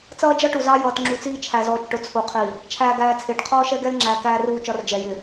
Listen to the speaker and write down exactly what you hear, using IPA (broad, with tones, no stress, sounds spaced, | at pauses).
t͡s ʌː˦ d͡ʒ ʌ˦ ʈ u˨ z ɑ˦ j ʌː˨ t ŋ͡ǁ u˨ t͡s iː˦ t͡ʃʰ æ˨ z ɔː˨ t͡ʃ ʈ ʊ˨ t͡sʰ u˨ qʰ i˨ | t͡ʃʰ æː˨ ɡ æː˨ t͡sʰ ɪː˨ ʈ qʰ ɔː˦ ʃ ɛ˦ ɡ ɛ˦ l ŋ͡ǁ æː˨ k æː˦ r uː˦˨ t͡ʃ ɒ˦ r d͡ʒ ɛ˨ j ɪ˨